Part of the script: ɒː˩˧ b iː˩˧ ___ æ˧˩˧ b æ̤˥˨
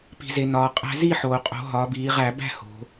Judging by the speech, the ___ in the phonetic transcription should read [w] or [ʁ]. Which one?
ʁ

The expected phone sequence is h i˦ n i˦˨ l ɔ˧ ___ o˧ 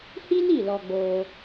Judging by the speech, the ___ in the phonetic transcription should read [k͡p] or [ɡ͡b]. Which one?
ɡ͡b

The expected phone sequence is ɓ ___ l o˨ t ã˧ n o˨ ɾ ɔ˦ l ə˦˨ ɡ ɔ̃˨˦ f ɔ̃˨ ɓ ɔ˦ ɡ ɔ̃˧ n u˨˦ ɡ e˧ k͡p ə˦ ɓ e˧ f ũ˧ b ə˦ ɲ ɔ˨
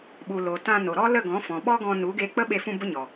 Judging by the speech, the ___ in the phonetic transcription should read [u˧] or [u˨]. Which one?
u˨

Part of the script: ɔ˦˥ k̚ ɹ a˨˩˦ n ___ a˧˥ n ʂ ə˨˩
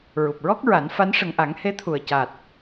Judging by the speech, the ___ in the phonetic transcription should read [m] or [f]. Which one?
f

